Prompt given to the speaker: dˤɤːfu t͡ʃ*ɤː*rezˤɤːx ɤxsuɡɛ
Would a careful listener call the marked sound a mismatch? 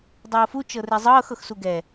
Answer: yes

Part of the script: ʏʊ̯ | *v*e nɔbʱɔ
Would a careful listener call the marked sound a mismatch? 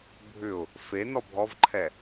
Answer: yes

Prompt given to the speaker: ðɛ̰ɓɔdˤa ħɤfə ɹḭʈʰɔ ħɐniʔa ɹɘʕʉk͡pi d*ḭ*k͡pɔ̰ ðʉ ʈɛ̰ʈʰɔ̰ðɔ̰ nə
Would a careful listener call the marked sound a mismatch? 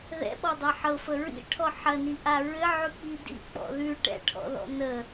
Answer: no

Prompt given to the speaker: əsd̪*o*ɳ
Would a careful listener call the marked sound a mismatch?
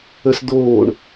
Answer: yes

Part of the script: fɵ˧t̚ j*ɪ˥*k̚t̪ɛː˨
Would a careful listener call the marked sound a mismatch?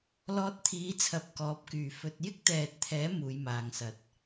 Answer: no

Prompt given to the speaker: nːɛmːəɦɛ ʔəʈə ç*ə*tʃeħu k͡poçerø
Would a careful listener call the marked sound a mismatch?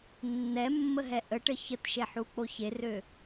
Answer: no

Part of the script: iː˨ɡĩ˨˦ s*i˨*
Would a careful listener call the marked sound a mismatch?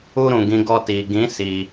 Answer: no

